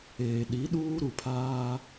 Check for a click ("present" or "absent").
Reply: absent